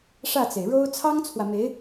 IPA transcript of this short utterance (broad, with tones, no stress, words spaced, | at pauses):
ʂä˥˩t͡se˩ɪ̯ ɻo˥ʊ̯ t͡sʰɑ˥ŋt͡sʰwä˨me˧˥ɪ̯